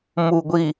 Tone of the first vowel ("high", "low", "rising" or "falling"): low